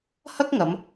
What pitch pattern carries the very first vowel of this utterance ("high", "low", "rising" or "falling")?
high